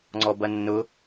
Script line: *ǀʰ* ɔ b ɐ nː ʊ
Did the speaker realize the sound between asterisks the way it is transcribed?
no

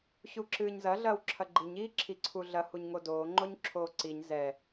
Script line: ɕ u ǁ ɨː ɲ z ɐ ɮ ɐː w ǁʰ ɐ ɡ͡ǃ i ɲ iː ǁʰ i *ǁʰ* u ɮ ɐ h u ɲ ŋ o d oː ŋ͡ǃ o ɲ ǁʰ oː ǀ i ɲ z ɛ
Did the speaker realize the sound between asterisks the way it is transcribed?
no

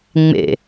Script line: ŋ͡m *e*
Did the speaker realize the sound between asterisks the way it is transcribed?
no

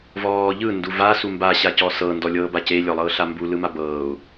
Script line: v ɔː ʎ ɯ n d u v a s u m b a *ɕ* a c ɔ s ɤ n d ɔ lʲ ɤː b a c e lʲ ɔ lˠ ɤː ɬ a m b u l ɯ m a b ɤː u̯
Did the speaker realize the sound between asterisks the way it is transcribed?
yes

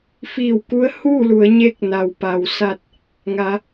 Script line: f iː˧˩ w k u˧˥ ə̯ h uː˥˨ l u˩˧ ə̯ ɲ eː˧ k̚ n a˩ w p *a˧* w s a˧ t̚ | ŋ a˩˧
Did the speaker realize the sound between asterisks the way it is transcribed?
no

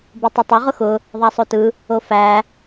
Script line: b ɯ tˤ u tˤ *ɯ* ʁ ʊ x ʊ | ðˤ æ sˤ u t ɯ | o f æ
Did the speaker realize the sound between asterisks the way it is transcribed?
no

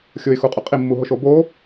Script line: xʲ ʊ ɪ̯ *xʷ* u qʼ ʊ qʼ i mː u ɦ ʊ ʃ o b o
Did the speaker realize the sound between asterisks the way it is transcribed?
no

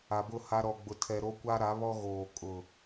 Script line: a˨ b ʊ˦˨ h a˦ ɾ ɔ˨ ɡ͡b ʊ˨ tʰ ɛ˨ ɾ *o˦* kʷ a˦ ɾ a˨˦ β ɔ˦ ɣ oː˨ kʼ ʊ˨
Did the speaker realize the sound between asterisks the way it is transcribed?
yes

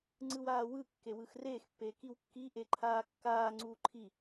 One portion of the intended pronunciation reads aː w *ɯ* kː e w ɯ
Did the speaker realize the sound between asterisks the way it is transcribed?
yes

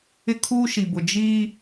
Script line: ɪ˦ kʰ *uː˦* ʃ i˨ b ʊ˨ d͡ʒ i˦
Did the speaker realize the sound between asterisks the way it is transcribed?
yes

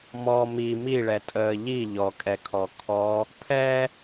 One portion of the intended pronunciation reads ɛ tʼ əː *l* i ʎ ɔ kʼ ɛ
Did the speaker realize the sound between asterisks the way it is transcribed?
no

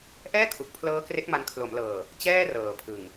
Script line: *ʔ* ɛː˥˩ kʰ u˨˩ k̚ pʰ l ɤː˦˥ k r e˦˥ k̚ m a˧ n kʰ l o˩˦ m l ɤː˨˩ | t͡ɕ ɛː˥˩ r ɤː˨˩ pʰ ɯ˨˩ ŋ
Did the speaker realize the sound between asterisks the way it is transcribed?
yes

